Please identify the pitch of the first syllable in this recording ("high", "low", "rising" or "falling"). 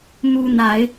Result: high